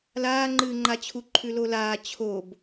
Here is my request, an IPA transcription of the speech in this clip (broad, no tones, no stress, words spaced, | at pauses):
laːŋ͡ǃɨːŋ͡ǃat͡ɕʰu ǃʰʉlolaː t͡ɕʰob